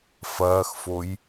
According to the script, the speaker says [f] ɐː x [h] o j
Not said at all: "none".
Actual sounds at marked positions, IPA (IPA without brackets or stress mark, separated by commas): f, f